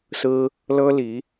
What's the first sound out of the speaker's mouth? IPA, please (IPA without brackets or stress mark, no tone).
s